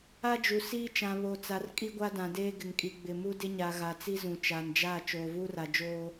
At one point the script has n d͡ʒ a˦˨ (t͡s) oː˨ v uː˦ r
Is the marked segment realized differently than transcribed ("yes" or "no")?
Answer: yes